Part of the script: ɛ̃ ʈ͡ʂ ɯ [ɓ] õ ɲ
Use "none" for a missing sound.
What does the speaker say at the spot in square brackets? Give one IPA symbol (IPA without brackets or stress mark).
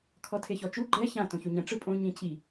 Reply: pʼ